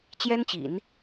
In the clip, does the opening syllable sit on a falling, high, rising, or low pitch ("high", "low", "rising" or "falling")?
high